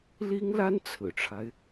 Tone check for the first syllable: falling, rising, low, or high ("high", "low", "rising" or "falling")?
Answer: high